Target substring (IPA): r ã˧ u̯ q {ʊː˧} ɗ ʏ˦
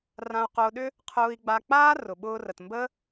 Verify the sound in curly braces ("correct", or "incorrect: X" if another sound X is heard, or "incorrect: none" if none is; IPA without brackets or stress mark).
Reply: correct